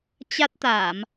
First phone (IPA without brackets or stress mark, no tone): t͡ɕ